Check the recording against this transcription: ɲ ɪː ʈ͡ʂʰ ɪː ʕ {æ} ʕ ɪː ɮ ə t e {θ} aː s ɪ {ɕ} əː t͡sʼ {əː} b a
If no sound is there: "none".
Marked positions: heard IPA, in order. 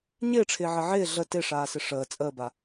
ə, ʂ, ʂ, əː

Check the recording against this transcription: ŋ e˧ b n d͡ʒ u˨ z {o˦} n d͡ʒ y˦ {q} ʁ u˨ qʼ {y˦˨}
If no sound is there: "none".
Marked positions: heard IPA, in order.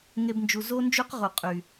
o˦, q, y˨

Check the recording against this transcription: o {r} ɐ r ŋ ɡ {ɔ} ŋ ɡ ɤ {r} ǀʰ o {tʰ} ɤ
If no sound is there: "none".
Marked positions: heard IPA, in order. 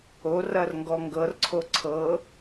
r, ɔ, r, ǀʰ

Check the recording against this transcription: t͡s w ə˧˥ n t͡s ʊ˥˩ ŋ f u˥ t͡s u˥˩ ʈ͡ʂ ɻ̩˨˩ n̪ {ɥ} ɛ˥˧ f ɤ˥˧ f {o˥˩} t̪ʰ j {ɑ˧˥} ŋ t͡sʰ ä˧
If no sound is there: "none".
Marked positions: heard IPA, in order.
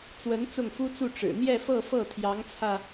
j, ɤ˥˩, ɑ˧˥

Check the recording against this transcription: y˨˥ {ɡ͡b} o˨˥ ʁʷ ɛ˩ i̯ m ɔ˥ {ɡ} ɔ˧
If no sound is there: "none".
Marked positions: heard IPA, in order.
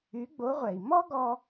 ɡ͡b, ɡ

